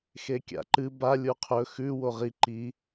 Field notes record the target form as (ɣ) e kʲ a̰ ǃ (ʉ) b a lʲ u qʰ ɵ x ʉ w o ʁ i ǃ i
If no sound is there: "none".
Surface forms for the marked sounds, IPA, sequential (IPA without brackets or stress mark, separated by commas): x, ɨ